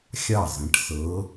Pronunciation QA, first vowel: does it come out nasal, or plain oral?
oral